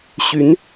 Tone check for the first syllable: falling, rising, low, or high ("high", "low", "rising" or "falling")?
rising